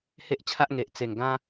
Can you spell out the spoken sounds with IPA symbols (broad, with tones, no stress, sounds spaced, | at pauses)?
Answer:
h e˦ ʔ t͡ɕʰ a˦ ʔ ŋ e˨ ʔ t͡s e˨˩ ŋ ɡ ã˦